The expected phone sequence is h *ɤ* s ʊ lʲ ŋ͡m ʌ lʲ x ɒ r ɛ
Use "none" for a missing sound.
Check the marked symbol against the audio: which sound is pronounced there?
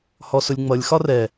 ɔ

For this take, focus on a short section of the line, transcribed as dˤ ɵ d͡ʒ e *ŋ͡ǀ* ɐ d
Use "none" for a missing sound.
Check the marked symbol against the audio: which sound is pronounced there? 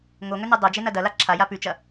n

